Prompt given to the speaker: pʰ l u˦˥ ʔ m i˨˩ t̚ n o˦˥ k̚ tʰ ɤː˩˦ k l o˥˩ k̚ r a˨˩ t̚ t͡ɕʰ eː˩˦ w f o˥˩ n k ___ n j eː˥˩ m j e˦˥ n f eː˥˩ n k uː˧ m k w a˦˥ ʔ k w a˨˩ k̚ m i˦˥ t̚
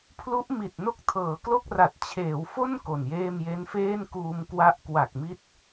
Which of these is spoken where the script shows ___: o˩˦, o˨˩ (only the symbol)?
o˨˩